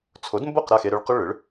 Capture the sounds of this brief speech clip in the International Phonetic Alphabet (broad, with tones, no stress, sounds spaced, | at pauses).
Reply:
t͡sʰ o˩˥ d m b o˥˩ q ɾ a˥˩ x e˧ ɾ ʏ˧ ɭ q ʏ˥ ɭ ʏ˩˥ ɭ